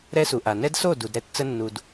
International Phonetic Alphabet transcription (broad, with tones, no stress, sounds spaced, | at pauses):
ɾ ɛ˦ s u˨ ʔ a˨ n ɛ˦ d s o˦˨ d u˨ d ɾ ɛ˦ t t͡s ə˦ nː u˨ d